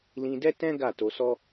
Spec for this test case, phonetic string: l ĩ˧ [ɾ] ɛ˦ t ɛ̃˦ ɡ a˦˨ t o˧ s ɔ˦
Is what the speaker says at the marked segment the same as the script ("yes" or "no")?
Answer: no